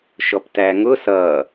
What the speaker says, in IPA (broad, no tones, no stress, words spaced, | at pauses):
ʃɔptæŋʊ sʌ